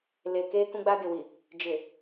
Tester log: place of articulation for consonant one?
alveolar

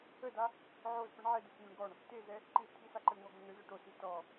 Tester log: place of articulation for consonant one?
alveolar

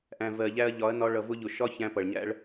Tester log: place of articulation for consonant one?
glottal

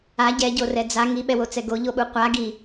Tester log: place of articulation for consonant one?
palatal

